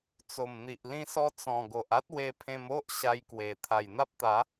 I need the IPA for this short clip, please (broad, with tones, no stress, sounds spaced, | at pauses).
t͡s o˨˩ m n̪ i˨ ʔ l ĩ˧ s ɔ˧ t͡s ɔ̃˨˩ ɡ o˨ ʔ a˦ t̚ w e˧ pʰ ẽ˧ m o˦ ʔ ɕ a˧ j k w e˨˩ t̪ʰ a˨˩ j n̪ a˦ p̚ t̪ a˨˦